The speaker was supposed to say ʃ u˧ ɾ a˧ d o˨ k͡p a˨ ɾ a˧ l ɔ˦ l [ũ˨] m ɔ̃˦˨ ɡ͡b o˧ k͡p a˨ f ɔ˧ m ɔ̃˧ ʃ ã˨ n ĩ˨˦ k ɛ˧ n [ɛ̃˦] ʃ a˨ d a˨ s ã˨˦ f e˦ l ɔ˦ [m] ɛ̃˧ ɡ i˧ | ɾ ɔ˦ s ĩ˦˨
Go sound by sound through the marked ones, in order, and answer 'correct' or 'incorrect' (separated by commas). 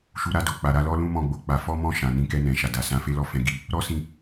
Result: incorrect, incorrect, incorrect